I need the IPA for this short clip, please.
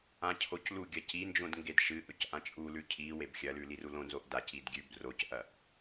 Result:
ãcʰoclu ɡʲɐcind͡ʒõd ŋɡedʃɨʔɵc ʔãt͡ʃʼulʉ cʰi webxʲɐlʉ lirulõnzoʔ dacid ɡʲʉb rocʔɐʔ

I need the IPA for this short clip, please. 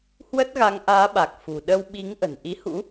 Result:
hwə˦˥t̚ɣa˨˦ŋʔaː˨˦ɓa˨˩k̚ fṳ˨˩ ɗə˧wɓi˨˦ŋ ʔə̤˨˩n ʔi˨˦hṵ˧˥

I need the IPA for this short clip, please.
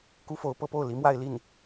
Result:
ku˥fo˧˥ʊ̯pɤ˧˥po˥˩ʊ̯ li˧˥mwa˥˧ɪ̯li˥˩n

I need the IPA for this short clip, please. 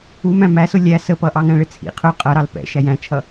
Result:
umæ̃ mæsʊ lʲæ səpʌ ʔɑŋæ̃ɭɪt͡sʰḭ qʰʊ qʼʌɾɑl pɛ̰ ʃæjæ̃t͡ʃʰʌ

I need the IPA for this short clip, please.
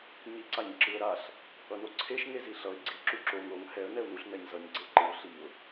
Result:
ɲiǀaɲǁɯə̯ɾaɬ | ʌnoǀʰeʃ ŋeziɬʌɪ̯ ɡ͡ǀi ǁuǁoŋ ɾoŋ hɛə̯ nɛʊ̯nuɬ nɛɲzʌɲ ɡ͡ǀeǃɯʊ̯ ɬiʊ̯

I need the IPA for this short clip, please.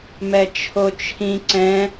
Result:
mɛt͡ʃʰot͡ʃʰĩ ǀɛ̃

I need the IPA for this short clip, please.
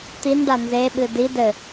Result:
t̪inɖa nzeɓɨ di dɘ

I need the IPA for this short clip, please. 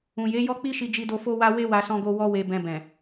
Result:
ũ˨je˨˦jɔ˦ k͡pi˦ʃi˧d͡ʒi˧do˧ fo˦wa˦ we˦wa˧ sɔ̃˦ɡo˦ wɔ˦we˧ bɛ̃˧bɛ̃˨

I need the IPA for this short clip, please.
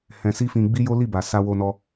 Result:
hɛ̃˧ si˦fĩ˧ ɡ͡bi˦jo˦li˦˨ ba˨sa˧ wo˧nɔ˧

